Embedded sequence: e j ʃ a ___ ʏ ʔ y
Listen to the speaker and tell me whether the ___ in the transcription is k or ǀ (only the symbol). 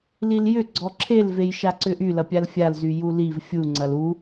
ǀ